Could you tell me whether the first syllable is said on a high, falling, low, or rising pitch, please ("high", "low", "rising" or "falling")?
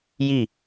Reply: falling